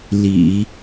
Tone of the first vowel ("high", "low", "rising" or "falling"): low